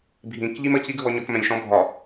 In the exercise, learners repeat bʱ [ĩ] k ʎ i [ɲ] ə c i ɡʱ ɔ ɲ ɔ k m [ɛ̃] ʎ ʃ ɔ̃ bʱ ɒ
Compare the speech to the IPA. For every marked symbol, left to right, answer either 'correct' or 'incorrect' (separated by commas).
correct, incorrect, correct